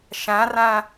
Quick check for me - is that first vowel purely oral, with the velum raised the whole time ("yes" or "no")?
no